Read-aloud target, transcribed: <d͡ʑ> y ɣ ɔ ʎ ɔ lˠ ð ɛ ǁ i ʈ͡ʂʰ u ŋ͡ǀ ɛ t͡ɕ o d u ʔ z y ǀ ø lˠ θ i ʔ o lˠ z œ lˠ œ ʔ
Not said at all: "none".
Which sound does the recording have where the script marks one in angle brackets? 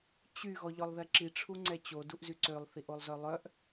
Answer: t͡ɕ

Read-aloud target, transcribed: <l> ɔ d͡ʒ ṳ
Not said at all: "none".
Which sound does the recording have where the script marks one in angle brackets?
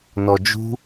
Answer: n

